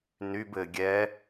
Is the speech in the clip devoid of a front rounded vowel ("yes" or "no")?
no